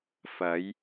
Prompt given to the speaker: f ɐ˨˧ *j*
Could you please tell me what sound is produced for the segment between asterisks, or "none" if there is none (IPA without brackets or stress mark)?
j